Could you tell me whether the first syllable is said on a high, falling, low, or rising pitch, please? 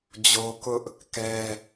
high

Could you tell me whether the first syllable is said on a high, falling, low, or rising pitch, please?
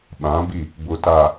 rising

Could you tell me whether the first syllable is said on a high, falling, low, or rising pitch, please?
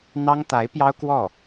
high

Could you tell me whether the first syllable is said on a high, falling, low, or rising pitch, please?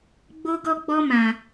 high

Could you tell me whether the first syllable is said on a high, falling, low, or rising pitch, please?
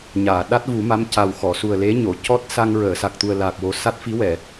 low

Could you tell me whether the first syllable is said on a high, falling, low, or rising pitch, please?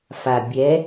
low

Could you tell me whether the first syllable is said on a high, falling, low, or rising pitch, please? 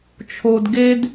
low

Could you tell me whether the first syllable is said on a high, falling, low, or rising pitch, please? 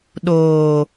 low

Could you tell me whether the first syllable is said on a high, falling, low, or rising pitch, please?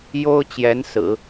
high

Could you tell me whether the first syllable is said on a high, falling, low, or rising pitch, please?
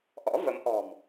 rising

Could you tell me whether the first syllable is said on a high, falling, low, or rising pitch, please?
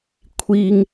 high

